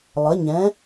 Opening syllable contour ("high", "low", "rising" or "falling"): rising